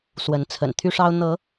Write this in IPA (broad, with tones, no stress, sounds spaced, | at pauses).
s w ə˨˦ n t͡sʰ ə̰˨˩ n t̪ʰ y˦ ʂ ɑ˦ ʊ̯ n̪ ɤ˨˦